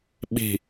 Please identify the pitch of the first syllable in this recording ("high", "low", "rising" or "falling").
low